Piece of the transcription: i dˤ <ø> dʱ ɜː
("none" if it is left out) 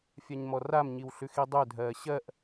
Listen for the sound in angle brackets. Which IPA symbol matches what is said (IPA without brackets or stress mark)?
ø